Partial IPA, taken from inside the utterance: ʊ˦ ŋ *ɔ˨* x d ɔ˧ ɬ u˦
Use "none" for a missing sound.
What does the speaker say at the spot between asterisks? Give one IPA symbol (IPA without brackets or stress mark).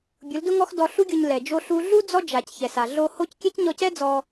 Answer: ɔ˦